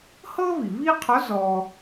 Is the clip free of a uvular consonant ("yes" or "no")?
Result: no